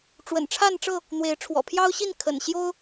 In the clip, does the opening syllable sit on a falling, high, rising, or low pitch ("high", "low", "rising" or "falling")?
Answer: low